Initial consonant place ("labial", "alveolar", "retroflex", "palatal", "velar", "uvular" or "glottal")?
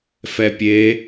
labial